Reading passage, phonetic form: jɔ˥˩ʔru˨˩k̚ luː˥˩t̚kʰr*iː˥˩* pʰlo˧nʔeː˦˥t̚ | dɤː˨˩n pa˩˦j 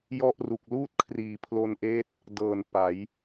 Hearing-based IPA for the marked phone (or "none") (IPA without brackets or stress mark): iː˨˩